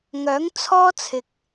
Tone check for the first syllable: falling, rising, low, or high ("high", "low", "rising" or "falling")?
rising